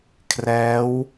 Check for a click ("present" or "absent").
absent